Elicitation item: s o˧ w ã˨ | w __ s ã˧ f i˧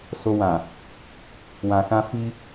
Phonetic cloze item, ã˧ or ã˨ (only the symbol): ã˨